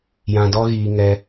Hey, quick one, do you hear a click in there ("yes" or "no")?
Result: no